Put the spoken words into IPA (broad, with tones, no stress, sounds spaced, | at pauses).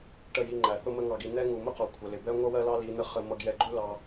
ʈ ə˦˨ j i˧ ŋ͡ǃ æ˨ θ ʊ˦ m ə˦ ŋ ɑ˧ ɡ i˧ n̪ ɛ˦ ŋ u˨ m ʊ˦ q ɒ˨ kʷʰ ə˨ l ɪ˨ b ɛ˦ ŋʷ ʌ˦ w ɜ˦ l ɑ˦ l i˨˦ n̪ ə˦ χ ə˧ m ʌ˧ ɡ j ɛ˧ ɡ͡ǃ u˦ l ɑ˧